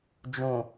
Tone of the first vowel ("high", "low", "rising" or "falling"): low